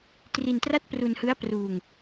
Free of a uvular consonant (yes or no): yes